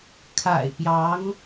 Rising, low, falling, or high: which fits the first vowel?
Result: low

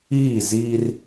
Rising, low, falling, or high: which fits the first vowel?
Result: falling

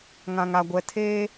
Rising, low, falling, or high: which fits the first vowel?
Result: low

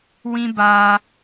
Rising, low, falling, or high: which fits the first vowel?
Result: high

